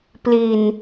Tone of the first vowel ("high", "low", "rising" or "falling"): low